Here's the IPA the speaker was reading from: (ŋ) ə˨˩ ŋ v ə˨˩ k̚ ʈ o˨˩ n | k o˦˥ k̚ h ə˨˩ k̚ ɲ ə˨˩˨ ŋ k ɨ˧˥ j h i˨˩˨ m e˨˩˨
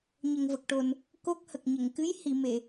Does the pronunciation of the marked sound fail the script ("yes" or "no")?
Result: yes